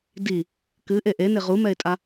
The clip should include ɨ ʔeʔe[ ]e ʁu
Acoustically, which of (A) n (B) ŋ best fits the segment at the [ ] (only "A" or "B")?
A